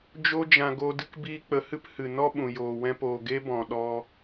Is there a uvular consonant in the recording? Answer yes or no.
no